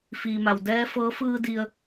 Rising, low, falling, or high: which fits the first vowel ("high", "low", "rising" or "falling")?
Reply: low